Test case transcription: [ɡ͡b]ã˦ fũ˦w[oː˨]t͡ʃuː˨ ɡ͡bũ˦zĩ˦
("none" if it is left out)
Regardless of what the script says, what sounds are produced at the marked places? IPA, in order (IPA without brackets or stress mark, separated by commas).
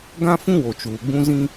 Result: ɡ, o˨